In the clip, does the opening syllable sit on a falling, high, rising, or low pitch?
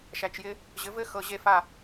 low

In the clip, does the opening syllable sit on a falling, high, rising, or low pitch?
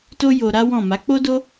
high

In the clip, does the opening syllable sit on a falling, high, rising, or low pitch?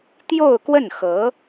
falling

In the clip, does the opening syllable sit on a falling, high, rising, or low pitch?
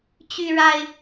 high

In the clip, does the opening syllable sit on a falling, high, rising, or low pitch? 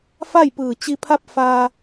falling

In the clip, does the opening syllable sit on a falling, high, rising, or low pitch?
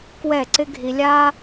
falling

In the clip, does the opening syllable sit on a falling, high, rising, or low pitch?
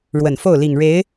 low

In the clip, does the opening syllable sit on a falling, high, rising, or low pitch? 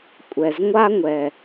low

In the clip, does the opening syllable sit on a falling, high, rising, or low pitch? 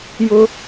high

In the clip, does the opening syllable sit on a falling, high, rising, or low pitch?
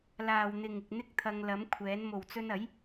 low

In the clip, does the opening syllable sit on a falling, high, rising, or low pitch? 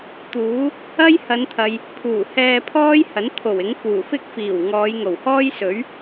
rising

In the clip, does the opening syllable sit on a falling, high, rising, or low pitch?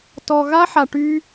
low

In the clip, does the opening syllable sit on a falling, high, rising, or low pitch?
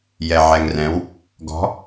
low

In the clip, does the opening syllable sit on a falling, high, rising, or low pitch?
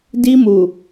high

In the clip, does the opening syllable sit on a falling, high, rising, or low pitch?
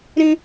high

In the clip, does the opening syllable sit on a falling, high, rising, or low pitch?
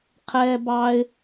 low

